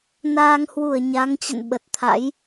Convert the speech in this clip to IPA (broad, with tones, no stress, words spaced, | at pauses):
naː˧ŋ hwu˧˩ə̯ ɲa˨˦ŋt͡ɕə̰˧˨n ɓə˨˩t̚t̪ʰa̰˧˥j